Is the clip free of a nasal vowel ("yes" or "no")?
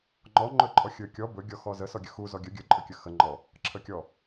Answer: yes